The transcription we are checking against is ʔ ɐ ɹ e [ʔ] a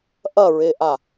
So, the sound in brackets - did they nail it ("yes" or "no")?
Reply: yes